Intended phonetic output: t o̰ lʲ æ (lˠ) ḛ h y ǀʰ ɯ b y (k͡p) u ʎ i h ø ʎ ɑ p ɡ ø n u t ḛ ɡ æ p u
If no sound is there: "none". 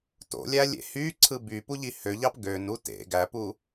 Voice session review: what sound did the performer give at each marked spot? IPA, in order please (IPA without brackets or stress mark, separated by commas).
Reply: lʲ, p